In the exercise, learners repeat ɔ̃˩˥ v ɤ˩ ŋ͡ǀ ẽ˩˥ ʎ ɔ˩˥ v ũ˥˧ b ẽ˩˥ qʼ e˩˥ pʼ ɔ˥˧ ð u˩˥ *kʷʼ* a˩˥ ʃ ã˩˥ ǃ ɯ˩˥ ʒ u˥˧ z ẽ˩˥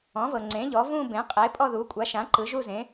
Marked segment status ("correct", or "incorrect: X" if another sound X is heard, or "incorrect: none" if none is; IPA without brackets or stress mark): correct